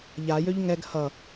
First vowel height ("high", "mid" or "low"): low